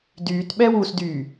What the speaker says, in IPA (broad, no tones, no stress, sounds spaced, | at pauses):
d yː t ɓ ɛ w u s d yː